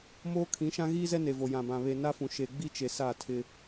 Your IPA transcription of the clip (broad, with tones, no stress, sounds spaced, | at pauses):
m oː˦ kʰ ĩ˨˦ ʃ ã˦ ɣ iː˦ z ɛ˦ n e˨ v o˨ j ã˨ b ã˨ β e˨ n a˦ f ũ˨ ʃ e˨ ɡ͡b i˦ t͡ʃ e˨ s a˦˨ tʰ ɪ˦